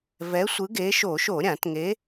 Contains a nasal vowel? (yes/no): yes